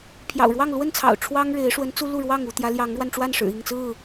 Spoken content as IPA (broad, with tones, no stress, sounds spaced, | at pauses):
pʰ j ɑ̰˨˩ ʊ̯ ɻ w ɑ˥˨ ŋ l w ə˥˨ n t͡sʰ ɑ̰˨˩ ʊ̯ ʈ͡ʂʰ w ɑ˦ ŋ ɻ e˨˦ ɪ̯ ʂ w ə˨˦ n t͡s u˦ l u˥˨ ɻ w ɑ˥˨ ŋ u˥˨ t̪ j ä˨˦ l j ɑ˨˦ ŋ ɻ w a˧ n ʈ͡ʂ w a˥˨ n ʂ ɻ̩˨˩ i˥˨ ŋ t͡s ɹ̩˥˨